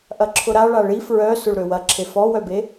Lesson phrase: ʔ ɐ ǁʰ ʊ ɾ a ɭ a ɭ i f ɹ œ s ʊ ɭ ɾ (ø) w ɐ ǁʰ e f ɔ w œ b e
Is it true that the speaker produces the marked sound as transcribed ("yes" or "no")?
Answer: yes